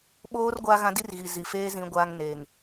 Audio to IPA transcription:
ɓ oː˦ r ɡʷ a˦ ɣ ã˦ d i˦ r ɣ i˨ z i˨ f eː˦ z ĩ˦ ɡʷ aː˦ ŋ n eː˨ ŋ

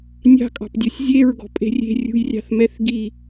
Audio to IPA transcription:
nʲ ɑ̤ kʼ ɑ̤ p dʲ ɔ sʲ zʲ e ɹ ɡ ɔ̤ pʼ e̤ rʲ e̤ rʲ ṳ j rʲ ɑ̤ θ m ɛ θ ɡ i

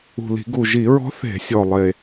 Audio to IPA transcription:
ṳ˨˩ l i̤˧˩˧ ɡ u˨˩ ʒ i˧˩˧ ɹ ɔ̤˧˥ θ e̤˧˩˧ sʲ ɔ˨˩ lˠ e˨˩

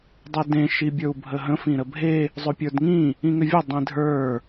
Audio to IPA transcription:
dˤ e d ẽ ʃ i bʲ ə˞ u̯ bʱ ə ɦ ə̃ f ĩ ɾ ə bʱ e | zˤ ɵ pʲ ə˞ d ŋ ĩ | ĩ ŋ ʏ vʲ ʌ dˤ ĩ dʱ ə˞

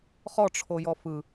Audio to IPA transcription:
χ ɔ ʈ͡ʂʰ o j ɔ f ɯ

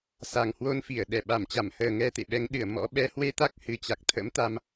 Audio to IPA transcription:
s a˨˩ ŋ h w o˧ n f i˧˩ ə̯ ɗ ɛ˧˩ ɓ a˧˩ m t͡ɕ a˧˩ m h əː˨˩ ŋ ɛ˧ t̪ ḛ˧˨ ɓ ɛ˨˦ ŋ ɗ ɨ˧˩ ə̯ m ɔ̰˧˥ ɓ ɛ˨˦ h w e˧ t̪ a˦˥ k̚ h ɨ˨˩ t͡ɕ a˨˩ k̚ t̪ʰ ə̰˧˥ m t̪ a˧ m

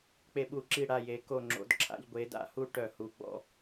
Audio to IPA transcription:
k͡p e˧ ɓ u˧˩˧ ǁ i˧˩ ɽ a˧˩ j e˩˧ k o˧˩ ŋ͡ǁ o̰˩˧ d ǁʰ a̰˧ ʎ ɡʷ e˩˧ d a̰˧˩ h u˧ ʈ œ˧˩˧ h u˩˧ ɡ͡b ɔ̰˧

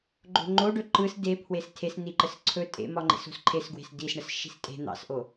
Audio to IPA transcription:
ɡ͡ǃ o̤ ŋ͡ǃ o ɖ ɵ ǃ ɯ s d e pʰ w e s tʰ e s n i ǃ ə s ǀʰ ɵ tʼ ḛ m ɒ ŋ͡ǃ ḛ s o̤ s ǃʰ e s ɡ w e̤ s d i s ɳ ə s ʃ i̤ s tʼ e̤ n̪ ɑ̰ s ʔ o

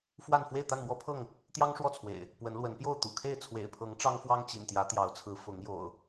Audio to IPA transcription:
f w a˥˨ n f w e˥˨ ɪ̯ t̪ a˥˨ n m w ɔ˦ pʰ ɤ˥˨ ŋ | t̪ j ɑ˦ ŋ ʂ w ɔ˥˨ t͡sʰ w ḛ˨˩ ɪ̯ | p w ə˨˦ n l w ə˨˦ n p j o˥˨ ʊ̯ t̪ ṵ˨˩ kʰ e˥˨ ɪ̯ t͡sʰ w ḛ˨˩ ɪ̯ pʰ ɤ˨˦ ŋ ʈ͡ʂ ɑ˦ ŋ f w ɑ˦ ŋ t͡ɕ ḭ˨˩ n t̪ j ä˨˦ t̪ j ɑ˨˦ ʊ̯ t͡sʰ ɹ̩˨˦ f ʊ˨˦ ŋ j o̰˨˩ ʊ̯

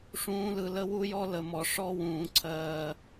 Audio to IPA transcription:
ʂ ũː˨˦ l ɯ˨ l ə˦ w u˦ j ɔ˦ l ə˨ m ɔ˨ ʂ ɔ˦ w ũː˨ ǀʰ ɜː˨

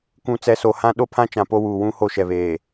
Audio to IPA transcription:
kʷ ũ˨ t͡s ɛ˨˦ s o˨ h ã˦ ɗ o˦ pʰ ã˦ t͡ʃ ã˨ p o˦ w uː˨ w ũ˦ h o˦˨ ʃ ɛ˨ β eː˨

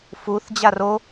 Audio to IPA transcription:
f u θ d͡ʑ a r o

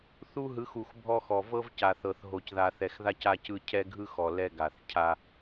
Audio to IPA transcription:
θ u˦ ɦ ɯ˨˦ x u˨ x bʱ ɔ˦ x ɔ˨ v ɤ˦ v c a˨ θ ɤ˨ θ ɦ o˨ c ð a˨ θ ɛ˨ x ð a˦ c a˦ c ɯ˦ cʰ ɛ˦ ɡʱ ɯ˦ x ɔ˨ l ɛ˦ ɡ a˨ θ cʰ a˦

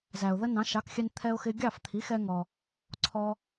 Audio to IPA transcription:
z æ˩ ʊ̯ ð ə˥ n ɑ̃˩˥ ʃ ɑ˩˥ k xʲ ɛ˧ n t̪ʰ ɛ˧ ʊ̯ x ɪ˧ ɡʲ ɑ˥˩ f t̪ʰ i˩˥ x ɛ˧ ŋ ɔ˩ | ǀʰ ɔ˧

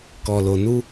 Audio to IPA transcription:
k ɔ˨ l o˨ n u˧

